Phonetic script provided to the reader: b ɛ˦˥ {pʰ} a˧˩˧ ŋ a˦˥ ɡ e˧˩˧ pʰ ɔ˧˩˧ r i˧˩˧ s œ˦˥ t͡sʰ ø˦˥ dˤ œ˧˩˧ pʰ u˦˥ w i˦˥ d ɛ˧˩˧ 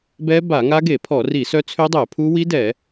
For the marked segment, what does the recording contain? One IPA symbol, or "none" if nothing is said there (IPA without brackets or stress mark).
b